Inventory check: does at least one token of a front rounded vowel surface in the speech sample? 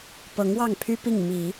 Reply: yes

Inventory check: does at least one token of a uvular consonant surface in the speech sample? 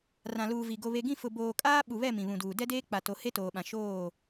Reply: no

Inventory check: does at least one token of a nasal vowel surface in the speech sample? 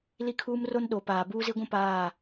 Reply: yes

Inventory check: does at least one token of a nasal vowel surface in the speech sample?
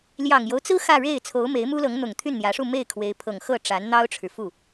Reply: no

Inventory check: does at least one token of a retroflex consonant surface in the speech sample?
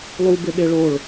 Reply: yes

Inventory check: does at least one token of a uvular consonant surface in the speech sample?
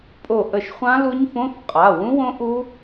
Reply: yes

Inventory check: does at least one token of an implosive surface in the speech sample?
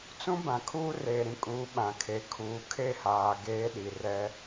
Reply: yes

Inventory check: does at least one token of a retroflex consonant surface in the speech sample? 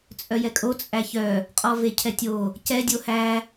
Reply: no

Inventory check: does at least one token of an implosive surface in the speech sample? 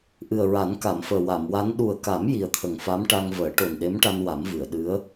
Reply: yes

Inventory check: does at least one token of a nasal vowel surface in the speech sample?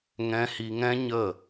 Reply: yes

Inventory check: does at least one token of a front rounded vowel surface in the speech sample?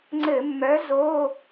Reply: yes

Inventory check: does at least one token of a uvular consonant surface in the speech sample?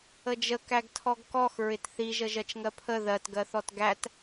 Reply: no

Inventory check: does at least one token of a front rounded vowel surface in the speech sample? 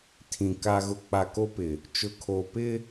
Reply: no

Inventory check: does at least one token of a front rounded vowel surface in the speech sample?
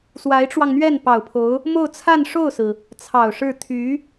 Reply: yes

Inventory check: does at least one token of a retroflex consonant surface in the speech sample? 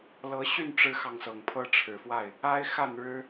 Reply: yes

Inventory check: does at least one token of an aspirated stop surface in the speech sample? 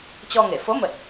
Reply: no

